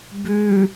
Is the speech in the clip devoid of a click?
yes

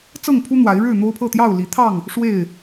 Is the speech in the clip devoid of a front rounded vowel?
yes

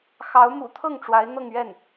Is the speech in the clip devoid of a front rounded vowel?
yes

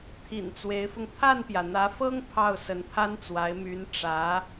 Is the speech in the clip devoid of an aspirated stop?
no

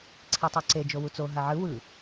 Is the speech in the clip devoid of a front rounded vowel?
yes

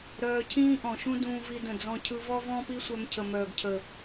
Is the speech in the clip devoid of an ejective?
yes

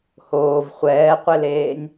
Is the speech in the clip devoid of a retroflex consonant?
yes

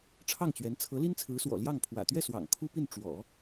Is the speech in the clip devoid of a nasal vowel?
yes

